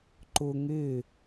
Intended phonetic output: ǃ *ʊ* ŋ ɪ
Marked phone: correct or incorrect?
correct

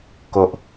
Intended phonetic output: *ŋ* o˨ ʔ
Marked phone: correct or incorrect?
incorrect: k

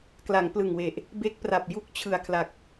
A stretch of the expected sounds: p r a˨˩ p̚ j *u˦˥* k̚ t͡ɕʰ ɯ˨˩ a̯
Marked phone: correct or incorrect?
correct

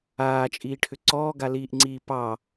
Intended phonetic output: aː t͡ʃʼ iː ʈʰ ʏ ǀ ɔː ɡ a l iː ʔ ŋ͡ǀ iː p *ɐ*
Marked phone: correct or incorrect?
incorrect: ɑ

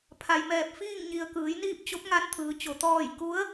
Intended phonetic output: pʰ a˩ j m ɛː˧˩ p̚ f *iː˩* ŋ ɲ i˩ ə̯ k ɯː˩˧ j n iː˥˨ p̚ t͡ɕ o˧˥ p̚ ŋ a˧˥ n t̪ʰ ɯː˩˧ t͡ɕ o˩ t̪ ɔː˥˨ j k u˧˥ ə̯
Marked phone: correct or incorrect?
incorrect: iː˥˨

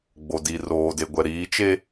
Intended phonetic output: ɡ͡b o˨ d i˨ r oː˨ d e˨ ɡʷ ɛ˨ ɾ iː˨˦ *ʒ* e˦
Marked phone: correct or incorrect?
incorrect: t͡ʃ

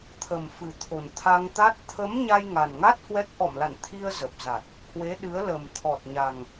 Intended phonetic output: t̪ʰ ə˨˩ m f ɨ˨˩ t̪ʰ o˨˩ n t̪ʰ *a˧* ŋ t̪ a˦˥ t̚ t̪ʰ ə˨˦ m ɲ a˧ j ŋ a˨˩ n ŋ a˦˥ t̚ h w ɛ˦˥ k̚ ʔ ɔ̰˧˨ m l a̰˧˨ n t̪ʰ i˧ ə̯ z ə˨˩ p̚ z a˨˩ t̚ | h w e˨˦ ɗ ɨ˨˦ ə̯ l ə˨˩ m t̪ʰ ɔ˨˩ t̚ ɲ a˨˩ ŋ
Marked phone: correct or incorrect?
correct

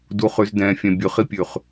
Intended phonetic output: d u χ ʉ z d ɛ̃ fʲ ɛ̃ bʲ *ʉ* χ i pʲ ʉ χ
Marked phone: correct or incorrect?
correct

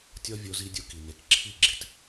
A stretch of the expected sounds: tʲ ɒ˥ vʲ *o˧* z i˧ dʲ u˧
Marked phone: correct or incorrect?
correct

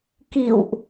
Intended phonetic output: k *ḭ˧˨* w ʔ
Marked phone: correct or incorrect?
correct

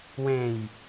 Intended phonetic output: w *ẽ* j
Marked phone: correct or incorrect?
correct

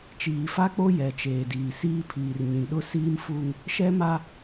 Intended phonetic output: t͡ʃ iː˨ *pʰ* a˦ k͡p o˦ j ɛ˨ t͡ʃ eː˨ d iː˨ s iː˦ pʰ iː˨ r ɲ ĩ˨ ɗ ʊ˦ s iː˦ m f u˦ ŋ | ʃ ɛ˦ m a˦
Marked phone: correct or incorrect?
incorrect: f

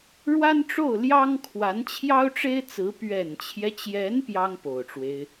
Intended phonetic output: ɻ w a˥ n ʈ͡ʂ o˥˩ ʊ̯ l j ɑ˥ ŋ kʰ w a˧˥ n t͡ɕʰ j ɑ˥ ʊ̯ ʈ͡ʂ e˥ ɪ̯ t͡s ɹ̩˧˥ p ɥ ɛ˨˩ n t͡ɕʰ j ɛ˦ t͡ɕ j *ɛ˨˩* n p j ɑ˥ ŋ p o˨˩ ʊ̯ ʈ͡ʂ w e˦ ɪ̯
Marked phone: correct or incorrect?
incorrect: ɛ˧˥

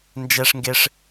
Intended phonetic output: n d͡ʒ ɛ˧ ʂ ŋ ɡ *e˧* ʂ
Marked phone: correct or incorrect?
correct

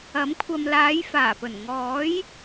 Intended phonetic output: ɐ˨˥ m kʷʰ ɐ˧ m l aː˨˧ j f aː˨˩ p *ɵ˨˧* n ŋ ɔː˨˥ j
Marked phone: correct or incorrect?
incorrect: ɵ˨˩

